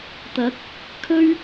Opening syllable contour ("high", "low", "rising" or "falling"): rising